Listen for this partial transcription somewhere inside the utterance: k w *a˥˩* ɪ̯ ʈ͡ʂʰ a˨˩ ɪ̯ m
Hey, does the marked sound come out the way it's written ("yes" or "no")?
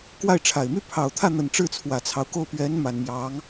yes